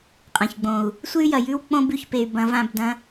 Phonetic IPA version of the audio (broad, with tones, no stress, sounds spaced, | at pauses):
qʼ ɐ̃˨ ç ɡ͡b õ˨ u̯ | sʷ ɨ˦ y̯ j ɐ˨ j ʉ˦ w k͡p õ˧ b ʉ˨ ç p e˨ y̯ b ɐ̃˧ v ã˦˨ b d ɐ̃˧